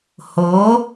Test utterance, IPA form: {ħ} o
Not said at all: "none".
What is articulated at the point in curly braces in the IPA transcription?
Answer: h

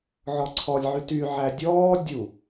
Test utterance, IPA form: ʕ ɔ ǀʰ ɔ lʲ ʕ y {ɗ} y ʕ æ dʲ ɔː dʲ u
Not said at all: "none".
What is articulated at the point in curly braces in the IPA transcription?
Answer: t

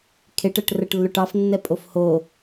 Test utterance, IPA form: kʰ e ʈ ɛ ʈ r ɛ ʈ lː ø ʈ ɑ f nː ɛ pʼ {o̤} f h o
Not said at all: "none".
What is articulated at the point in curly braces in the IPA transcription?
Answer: o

